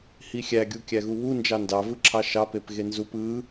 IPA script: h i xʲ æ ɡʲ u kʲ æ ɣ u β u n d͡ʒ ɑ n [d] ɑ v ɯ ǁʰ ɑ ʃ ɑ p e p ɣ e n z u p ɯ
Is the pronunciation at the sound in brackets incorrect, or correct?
correct